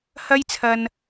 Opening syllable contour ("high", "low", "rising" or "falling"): high